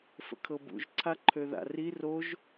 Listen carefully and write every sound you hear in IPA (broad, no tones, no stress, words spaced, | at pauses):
fə̰kʰɤbṵʒ ǀʰaǃʰøða̰ri roʒ